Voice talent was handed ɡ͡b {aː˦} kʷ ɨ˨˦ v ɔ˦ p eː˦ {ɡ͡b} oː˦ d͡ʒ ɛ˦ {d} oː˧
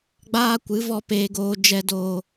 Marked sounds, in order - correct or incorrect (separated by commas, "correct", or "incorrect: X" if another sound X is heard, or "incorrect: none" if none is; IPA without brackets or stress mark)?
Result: correct, incorrect: ɡ, correct